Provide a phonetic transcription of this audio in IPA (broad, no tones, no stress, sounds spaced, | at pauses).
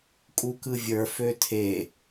kʼ u k ɯ vʲ ə˞ f ø tʰ e